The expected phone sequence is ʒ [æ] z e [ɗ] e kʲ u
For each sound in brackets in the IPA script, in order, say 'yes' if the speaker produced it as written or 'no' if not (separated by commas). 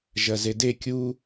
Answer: no, no